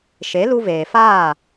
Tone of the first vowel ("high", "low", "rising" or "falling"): rising